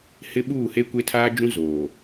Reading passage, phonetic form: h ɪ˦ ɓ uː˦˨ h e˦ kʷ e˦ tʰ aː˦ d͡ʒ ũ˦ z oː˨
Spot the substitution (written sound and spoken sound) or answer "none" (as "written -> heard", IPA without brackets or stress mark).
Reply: none